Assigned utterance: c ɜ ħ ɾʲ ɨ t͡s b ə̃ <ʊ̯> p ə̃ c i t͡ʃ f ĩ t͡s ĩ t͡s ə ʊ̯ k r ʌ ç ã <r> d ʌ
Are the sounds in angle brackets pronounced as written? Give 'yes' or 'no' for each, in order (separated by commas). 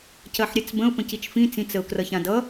yes, no